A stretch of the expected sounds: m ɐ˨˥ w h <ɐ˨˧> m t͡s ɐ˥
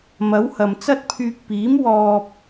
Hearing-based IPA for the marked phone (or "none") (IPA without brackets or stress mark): ɐ˨